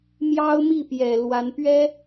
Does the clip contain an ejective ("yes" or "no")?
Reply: no